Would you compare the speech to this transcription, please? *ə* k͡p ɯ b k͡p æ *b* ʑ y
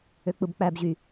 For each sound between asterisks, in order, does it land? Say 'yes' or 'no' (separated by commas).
no, yes